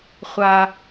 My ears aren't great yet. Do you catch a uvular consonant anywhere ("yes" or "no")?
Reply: yes